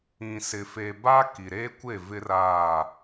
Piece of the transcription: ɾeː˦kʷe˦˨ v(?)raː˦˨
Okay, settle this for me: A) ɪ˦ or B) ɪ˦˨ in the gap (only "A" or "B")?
A